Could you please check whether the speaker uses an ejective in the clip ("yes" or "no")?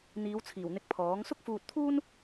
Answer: no